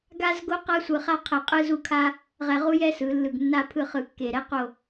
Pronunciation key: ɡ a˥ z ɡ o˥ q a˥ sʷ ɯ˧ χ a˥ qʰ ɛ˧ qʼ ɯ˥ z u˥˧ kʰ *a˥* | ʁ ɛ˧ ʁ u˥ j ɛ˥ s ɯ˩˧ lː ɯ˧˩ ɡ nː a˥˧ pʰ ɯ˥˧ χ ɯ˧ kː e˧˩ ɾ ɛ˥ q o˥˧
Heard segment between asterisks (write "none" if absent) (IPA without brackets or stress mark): a˥